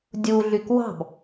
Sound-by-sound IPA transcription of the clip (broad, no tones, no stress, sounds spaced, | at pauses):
dʲ u ɮ y k w ɑ̤ b